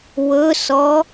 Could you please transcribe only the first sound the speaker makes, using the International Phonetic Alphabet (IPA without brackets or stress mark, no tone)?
w